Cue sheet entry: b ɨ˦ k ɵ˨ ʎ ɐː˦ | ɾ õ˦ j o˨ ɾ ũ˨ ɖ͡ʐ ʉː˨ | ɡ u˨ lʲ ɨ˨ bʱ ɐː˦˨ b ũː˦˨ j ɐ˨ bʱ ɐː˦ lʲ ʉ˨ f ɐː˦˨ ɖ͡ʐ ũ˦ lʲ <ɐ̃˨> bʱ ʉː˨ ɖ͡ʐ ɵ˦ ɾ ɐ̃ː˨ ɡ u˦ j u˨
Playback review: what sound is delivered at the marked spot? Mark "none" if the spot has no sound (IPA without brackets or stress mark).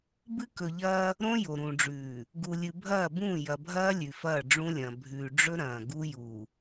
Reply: ɐ̃˨